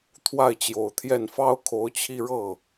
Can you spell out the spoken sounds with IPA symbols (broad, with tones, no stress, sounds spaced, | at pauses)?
t̪ʰ w a˥˩ ɪ̯ t͡ɕ j o˨˩ ʊ̯ t̪ʰ j ɛ˥˩ n f ɑ˥ ʊ̯ kʰ o˧˥ ʊ̯ t͡ɕʰ i˥˧ ɻ ɤ˥˩